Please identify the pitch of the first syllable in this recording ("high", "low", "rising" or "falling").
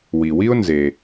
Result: low